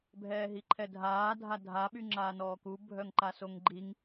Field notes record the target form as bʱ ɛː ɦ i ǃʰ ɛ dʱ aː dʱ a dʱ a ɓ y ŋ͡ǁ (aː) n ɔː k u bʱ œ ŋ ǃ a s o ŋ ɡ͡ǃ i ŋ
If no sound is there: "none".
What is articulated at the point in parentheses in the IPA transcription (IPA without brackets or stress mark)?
aː